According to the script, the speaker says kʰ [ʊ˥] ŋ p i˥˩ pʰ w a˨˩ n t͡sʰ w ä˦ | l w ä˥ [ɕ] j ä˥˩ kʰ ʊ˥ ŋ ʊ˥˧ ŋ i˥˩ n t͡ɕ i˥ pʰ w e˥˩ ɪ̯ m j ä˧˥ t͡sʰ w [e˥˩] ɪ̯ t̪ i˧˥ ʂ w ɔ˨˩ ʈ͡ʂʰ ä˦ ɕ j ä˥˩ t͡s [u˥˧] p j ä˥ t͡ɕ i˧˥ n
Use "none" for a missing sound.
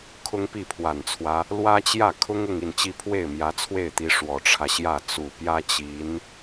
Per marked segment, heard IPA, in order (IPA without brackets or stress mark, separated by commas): ʊ˥, t͡ɕ, e˥˩, u˨˩